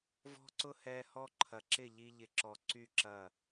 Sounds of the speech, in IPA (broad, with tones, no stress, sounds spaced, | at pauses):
v ɔ̤˦ ǀ ʊ˦ h ɛ˧ h ɔ˦ ǃʰ ɐ˨ ǁ ɪ˦˨ ʎ i˦ ʎ ɪ˧ ǁ ɔ˨ ǀ y˦˨ ǁ ɐ˦˨